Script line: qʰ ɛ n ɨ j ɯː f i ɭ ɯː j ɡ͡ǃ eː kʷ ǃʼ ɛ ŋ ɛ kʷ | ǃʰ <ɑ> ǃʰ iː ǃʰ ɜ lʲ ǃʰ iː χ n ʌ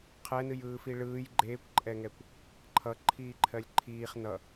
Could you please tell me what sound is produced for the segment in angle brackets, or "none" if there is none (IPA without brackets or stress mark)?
ʌ